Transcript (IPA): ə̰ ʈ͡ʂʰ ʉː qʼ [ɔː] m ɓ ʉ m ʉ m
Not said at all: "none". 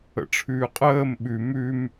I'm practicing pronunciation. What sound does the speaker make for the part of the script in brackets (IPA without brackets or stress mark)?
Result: əː